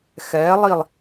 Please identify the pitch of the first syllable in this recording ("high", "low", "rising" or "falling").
rising